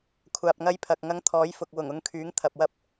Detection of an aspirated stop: present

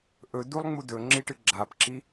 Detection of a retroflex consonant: present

